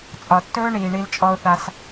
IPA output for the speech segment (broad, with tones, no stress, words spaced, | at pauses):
t͡sʼɒ˨tːɵː˦ɳiː˨ ɳi˧lt͡ʃʼɔ˧ʊ̯θa˧s